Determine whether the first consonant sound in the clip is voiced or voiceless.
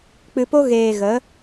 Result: voiceless